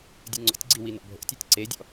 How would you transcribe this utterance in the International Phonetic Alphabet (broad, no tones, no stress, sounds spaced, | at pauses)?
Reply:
dʲ u ŋ͡ǀ ɔ̰ tʲ ɡ͡ǀ i w i n ɔ̰ bʱ o̰ tʲ e tʲ ǀ e dʲ ɔ̰